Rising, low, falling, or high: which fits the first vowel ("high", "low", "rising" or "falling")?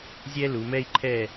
high